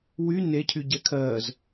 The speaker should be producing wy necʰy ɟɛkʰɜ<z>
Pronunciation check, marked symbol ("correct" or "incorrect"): correct